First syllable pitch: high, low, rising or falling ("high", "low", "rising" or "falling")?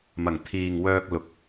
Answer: low